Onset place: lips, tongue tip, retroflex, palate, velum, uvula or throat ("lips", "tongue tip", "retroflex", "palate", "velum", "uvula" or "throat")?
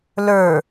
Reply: tongue tip